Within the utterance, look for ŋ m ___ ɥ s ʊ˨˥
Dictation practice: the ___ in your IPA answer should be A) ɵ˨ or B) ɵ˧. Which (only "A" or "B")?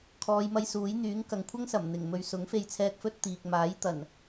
B